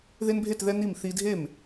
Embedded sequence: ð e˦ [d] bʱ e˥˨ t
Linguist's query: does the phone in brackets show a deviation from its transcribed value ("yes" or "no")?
yes